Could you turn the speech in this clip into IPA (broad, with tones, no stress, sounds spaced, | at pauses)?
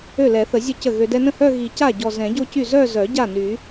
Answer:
ø˥˩ l ɛ˨˩˦ θ ə˨˩˦ zʲ ə˥˩ c ə˥˩ ɣ ø˧ d ɛ˧ n ə̃˥˩ h œ˥˧ ɣ i˨˩˦ c a˥˩ ɟ ɔ˨˩ z ɛ̃˨˩˦ ɟ o˥˧ c y˥˩ z œ˥˧ z œ˨˩˦ ɟ a˥˩ n y˨˩˦